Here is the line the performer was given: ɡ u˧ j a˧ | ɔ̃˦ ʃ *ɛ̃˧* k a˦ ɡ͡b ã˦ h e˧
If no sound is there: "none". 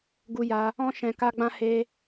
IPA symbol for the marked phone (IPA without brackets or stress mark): ɛ̃˧